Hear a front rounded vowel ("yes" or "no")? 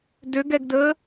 yes